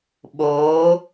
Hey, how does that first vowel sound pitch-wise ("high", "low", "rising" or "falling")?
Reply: rising